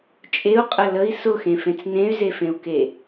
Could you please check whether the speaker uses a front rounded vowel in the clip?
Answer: yes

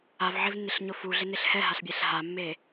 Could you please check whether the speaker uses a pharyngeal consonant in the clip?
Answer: yes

